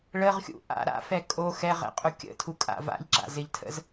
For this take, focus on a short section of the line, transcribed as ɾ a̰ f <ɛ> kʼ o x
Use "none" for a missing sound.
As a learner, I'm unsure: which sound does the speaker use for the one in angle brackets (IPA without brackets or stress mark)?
ɛ